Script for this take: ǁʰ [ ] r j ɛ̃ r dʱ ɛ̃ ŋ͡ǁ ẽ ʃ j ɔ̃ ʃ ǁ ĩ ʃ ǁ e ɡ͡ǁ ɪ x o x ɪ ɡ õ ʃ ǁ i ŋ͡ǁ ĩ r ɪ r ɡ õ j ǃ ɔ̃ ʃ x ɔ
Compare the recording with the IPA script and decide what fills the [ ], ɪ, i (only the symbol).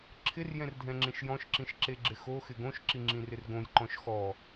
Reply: ɪ